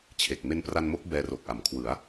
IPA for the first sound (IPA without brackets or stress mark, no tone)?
t͡ɕʰ